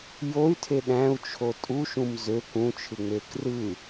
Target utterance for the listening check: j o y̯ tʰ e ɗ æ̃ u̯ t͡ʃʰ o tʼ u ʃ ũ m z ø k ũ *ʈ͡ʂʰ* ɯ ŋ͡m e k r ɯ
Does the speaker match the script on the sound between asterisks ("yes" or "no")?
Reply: no